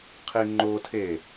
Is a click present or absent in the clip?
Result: present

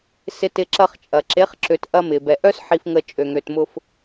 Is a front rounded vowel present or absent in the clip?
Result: present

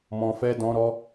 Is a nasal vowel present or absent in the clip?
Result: present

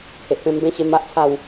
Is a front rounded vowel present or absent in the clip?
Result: absent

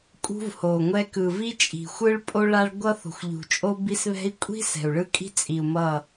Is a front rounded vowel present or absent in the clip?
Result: absent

